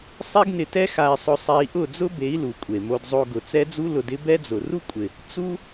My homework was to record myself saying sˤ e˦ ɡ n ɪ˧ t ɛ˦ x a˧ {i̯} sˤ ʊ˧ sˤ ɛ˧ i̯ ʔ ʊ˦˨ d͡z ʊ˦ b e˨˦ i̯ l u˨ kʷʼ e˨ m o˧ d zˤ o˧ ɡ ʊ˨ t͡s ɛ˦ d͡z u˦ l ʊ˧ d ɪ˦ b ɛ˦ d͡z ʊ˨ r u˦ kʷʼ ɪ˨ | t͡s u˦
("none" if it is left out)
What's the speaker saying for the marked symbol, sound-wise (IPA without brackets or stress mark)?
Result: i̯